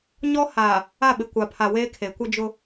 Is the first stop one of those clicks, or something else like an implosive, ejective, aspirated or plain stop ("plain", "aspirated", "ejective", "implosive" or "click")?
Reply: implosive